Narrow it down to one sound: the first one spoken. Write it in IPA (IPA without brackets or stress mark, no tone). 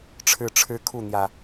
ʈ͡ʂʰ